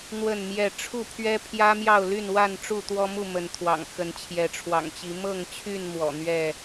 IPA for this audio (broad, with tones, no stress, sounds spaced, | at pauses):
n̪ w ə˥˨ n m j ɛ˥˨ ʈ͡ʂʰ u˥˨ pʰ ɥ ɛ˦ pʰ j ä˦ m j ɑ˥˨ ʊ̯ l y˥˨ n w a˥˨ n ʈ͡ʂ u˥˨ t̪ w ɔ˦ m u˥˨ m ə˨˦ n t̪ʰ w ɑ̰˨˩ ŋ x ə˨˦ n t͡ɕʰ j ɛ˨˦ ʈ͡ʂʰ w ɑ̰˨˩ ŋ t͡ɕ i˨˦ m ɤ˥˨ ŋ t͡ɕʰ y˥˨ n m w ɔ̰˨˩ n̪ ɥ ɛ˥˨